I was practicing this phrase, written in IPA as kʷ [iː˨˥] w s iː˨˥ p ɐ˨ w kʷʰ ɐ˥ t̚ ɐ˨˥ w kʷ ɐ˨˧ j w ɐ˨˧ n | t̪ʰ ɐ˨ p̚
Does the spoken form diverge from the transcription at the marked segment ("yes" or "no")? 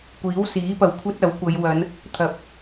no